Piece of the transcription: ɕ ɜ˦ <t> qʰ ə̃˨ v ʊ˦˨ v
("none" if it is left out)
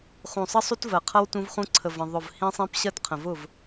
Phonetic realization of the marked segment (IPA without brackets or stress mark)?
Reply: t